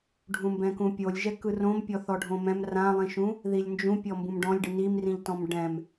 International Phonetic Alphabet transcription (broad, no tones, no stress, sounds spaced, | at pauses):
ɖʱ ũ m b ɛ̃ k ũ pʲ o lʲ ʒ ɛ k ɯ r õ m pʲ ɔ θ ɔ ɖʱ õ m ɛ̃ m r ã lˠ ĩ ʃ ũ | ð i lʲ n d͡ʒ ũ pʲ ɔ m b ũ m ɖ ɔ̃ lʲ ɖ ɯ n i m r ĩ ʎ t ɔ̃ m ɖ ɛ̃ m